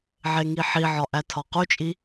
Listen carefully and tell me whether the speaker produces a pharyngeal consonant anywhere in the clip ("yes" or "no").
yes